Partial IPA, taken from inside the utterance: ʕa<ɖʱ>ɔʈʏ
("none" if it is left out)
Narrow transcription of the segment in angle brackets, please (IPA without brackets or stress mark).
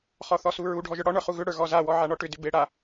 ɳ